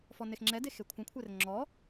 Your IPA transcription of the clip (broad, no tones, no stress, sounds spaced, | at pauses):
f ɔ n e x ŋ͡ǁ ɛ d e x e kʷʰ ə̃ kʷʰ e r ŋ͡ǁ ɔ